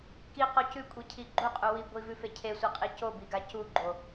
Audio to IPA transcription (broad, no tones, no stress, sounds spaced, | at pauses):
k i q o c ʉ kʷʼ i cʰ i ɡ͡ǃ u qʼ u w i ɡʷ i v ʉ f e cʰ e sʷ e qʼ i c o b i ɡ a c u ɡ͡ǃ o